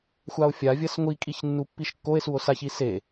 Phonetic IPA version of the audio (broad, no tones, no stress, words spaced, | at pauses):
xʷao̯fʲavʲɐs ŋʷikʼiç nːupːiʃkːoe̯suo̯ saçi se